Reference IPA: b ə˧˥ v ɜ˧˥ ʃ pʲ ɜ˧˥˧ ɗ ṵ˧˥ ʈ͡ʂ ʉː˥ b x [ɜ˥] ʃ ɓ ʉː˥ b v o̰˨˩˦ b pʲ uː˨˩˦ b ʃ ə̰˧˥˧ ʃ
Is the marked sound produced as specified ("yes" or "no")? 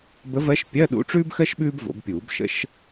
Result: yes